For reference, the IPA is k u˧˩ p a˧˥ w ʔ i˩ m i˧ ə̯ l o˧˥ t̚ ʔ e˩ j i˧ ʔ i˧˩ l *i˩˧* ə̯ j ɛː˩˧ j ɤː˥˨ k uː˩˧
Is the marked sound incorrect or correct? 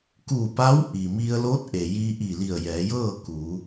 incorrect